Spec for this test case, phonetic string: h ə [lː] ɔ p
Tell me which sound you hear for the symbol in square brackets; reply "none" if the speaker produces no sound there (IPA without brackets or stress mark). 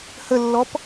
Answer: lː